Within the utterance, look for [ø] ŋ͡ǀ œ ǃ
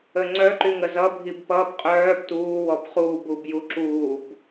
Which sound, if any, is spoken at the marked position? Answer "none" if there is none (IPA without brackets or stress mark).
ə